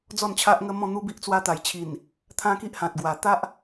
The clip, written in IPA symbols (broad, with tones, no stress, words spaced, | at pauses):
d͡zɔ˥˧nt͡ɕʰa˦ʔŋə˦ mɔ̃˥˧n̪u˦bi˦ʔ t͡swa˧t̪a˨˩jt͡ɕʰi˨˩n | t̪ʰã˦ki˦ʔhã˨t̚ɡwa˨˩ t̪a˦ʔ